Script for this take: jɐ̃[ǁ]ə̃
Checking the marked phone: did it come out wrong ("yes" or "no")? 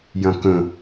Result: yes